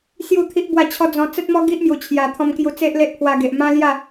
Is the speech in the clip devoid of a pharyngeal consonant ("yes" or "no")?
yes